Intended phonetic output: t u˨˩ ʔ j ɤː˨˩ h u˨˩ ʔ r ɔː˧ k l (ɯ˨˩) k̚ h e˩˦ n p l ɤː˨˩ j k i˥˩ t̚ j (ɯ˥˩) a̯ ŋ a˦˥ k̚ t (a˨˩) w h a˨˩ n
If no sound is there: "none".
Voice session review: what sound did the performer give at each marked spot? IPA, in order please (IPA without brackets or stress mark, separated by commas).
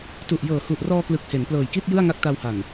ɯ˨˩, ɯ˥˩, a˧